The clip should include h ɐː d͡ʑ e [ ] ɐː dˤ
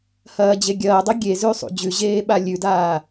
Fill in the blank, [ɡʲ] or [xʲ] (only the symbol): ɡʲ